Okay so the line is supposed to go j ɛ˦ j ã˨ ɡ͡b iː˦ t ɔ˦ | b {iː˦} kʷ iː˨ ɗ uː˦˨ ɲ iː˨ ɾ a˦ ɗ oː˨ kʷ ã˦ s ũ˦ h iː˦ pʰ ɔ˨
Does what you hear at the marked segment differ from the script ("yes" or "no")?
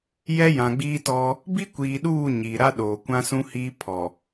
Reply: yes